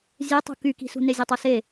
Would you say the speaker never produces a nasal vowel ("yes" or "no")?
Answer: yes